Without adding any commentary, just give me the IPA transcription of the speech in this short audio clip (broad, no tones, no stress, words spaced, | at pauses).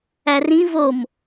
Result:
ærĩ vom